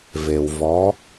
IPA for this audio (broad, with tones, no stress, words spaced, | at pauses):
ve˩wvɔ˩˧